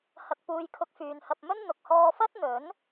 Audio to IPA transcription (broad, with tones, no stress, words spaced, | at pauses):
hɐ˧k̚ puː˧jkʰʊ˧k̚ fyː˨nhɐ˧p̚mɵ˥n n̪ʊ˨k̚hɔː˧fɐ˥t̚n̪ɵ˨˥n